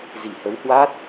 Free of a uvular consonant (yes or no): yes